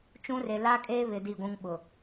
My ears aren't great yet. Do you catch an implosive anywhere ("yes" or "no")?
yes